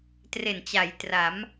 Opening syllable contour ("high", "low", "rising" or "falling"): low